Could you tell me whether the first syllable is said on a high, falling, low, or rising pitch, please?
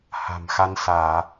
low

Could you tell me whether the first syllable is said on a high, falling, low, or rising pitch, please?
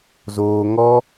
low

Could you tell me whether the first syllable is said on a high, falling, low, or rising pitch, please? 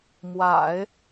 low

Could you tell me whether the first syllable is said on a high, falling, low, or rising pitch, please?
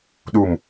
low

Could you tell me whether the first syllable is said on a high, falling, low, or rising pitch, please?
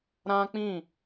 high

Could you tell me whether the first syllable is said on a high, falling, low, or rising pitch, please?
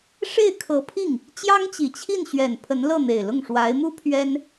falling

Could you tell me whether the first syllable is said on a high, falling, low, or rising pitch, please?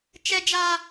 high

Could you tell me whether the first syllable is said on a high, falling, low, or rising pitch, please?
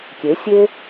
rising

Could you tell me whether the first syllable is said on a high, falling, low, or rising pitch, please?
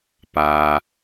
low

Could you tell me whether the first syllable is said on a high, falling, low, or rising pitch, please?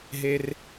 low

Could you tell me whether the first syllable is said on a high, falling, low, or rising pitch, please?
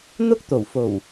high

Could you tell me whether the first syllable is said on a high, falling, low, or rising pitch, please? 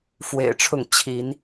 low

